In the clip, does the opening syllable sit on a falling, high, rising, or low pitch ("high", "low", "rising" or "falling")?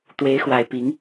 rising